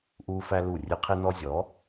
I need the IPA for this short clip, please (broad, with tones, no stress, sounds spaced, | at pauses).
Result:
ʔ uː˧ f æ˧ l u˦˨ rʲ ɨ˦ qʰ e˦ n ɔ˦ zʲ ɔ˨˦